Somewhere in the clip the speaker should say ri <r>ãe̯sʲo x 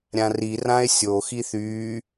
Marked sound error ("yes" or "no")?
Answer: no